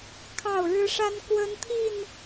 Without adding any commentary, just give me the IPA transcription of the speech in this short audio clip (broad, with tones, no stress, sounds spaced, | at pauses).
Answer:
kʰ ɑ˥˨ ʊ̯ ɻ ɻ̩˦ ʂ a˦ n k w ə˦ n t̪ʰ i˥˨ n